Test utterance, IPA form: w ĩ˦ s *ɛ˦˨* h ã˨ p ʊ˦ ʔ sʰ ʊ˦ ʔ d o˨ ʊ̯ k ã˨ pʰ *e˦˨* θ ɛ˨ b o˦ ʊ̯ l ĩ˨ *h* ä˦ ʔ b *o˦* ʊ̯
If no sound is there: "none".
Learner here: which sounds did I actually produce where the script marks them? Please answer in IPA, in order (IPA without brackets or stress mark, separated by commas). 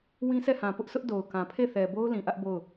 ɛ˦˨, e˦˨, ʔ, o˦˨